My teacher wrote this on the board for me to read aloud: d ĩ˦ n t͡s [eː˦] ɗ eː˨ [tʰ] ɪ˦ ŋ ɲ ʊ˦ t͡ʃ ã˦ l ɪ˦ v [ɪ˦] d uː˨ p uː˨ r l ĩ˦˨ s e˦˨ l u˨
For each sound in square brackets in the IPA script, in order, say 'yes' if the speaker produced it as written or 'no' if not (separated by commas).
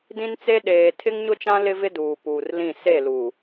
no, yes, yes